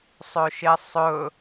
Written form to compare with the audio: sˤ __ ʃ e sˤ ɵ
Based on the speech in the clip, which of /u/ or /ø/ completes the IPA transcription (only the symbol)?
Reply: ø